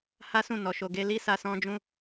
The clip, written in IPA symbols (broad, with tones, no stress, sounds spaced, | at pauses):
h a˦ s ũ˦˨ n ɔ˨ ʃ o˨ ɡ e˧ l i˦ s a˧ s ɔ̃˦ d͡ʒ ũ˦